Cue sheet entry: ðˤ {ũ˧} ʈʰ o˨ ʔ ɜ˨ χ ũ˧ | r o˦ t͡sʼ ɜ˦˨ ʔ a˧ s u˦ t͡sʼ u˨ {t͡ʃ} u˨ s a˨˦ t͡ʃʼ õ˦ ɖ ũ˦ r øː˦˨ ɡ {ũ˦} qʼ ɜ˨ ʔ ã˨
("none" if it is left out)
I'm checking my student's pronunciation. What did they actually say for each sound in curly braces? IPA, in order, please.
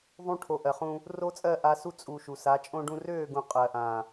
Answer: ũ˧, ʃ, ũ˨

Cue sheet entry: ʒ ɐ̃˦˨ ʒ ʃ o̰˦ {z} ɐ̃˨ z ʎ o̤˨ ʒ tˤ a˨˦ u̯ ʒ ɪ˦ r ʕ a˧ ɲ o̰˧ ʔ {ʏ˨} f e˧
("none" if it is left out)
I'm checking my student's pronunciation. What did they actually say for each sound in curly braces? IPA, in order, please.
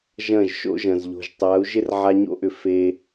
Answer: ʒ, ʏ˨

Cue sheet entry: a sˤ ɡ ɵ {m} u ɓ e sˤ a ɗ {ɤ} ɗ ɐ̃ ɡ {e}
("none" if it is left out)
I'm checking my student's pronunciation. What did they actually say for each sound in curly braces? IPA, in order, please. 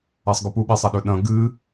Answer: p, ɵ, ɨ

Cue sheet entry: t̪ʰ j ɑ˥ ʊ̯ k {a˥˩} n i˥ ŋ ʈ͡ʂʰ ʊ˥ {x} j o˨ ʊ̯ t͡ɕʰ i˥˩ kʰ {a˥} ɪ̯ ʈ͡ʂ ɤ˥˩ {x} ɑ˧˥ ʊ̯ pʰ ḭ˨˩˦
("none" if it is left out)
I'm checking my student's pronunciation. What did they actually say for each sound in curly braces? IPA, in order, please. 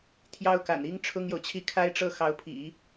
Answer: a̰˨˩, ŋ, a˥, x

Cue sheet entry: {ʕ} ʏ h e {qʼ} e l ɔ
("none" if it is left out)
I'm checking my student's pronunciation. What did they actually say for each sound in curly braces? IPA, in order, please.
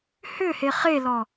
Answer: h, χ

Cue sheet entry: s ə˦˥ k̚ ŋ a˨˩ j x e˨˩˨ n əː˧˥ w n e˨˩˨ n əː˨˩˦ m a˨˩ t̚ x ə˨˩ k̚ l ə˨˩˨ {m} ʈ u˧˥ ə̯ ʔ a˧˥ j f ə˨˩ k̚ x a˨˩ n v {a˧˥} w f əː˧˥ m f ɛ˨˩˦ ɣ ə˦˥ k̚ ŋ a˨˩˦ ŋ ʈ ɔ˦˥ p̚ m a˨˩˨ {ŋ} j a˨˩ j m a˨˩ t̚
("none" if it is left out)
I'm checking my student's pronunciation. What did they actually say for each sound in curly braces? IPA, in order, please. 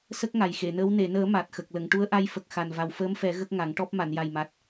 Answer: ŋ, a˨˩, n

